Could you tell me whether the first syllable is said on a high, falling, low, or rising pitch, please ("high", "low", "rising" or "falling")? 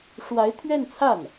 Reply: rising